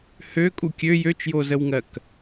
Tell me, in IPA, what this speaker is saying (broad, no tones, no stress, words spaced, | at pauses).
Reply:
hø kʼukʲø jøt͡ʃjozəwŋɜk